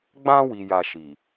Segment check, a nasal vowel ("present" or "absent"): present